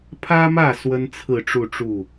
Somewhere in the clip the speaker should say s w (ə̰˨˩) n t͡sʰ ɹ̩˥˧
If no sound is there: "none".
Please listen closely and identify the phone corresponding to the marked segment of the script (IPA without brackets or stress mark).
ə˥